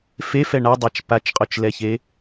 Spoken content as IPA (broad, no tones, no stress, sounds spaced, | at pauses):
f e f ɛ ɳ a dˤ a t͡ʃ p a t͡ʃ qʼ o t͡ʃ l ɛ ç e